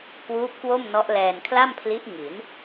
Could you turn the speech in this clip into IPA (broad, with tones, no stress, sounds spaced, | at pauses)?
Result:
k w uː˦˥ p̚ k w o˥˩ m n ɔ˦˥ ʔ l ɛː˧ n kʰ l a˥˩ m pʰ l i˦˥ ʔ ŋ i˩˦ n